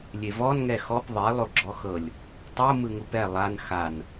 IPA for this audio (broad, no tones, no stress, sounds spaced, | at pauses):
lʲ e v ɔ n ŋ ɛ x ɔ p ðˤ e lˠ o ɡ͡ǁ ɔ x ɤ lʲ | tˤ o m ɯ ŋ u p ɛ lˠ a n x a n